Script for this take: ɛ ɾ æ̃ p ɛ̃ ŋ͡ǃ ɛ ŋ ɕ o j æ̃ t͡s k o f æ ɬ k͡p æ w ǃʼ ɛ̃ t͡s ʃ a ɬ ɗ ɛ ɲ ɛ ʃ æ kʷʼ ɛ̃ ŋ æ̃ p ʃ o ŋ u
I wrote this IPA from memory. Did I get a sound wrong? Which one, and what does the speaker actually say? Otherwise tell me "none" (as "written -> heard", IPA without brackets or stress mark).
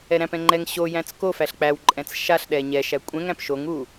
none